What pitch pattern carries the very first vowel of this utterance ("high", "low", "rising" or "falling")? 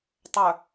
low